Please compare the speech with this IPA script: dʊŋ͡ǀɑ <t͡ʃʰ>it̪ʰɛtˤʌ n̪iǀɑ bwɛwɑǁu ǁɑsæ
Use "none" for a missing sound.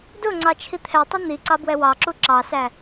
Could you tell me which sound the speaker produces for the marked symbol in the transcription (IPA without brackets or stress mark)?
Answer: t͡ʃʰ